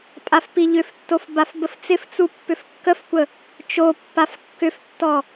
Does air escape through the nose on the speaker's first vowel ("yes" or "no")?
no